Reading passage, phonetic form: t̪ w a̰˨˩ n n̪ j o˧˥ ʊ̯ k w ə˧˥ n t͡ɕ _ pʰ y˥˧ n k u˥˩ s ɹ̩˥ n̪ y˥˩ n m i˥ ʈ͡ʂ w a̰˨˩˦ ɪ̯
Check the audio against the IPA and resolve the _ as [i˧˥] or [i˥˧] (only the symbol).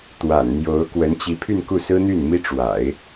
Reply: i˧˥